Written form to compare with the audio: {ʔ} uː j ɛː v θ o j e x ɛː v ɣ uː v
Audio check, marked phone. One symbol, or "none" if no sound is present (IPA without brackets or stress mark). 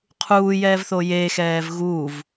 qʰ